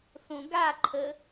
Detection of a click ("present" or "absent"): present